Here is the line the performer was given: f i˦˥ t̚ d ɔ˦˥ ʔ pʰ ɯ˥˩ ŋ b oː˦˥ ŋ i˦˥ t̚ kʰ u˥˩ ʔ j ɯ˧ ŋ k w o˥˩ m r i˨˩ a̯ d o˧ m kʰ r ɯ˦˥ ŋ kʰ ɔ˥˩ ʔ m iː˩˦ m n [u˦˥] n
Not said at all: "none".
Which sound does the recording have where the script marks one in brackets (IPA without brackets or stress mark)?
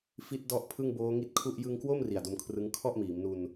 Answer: u˧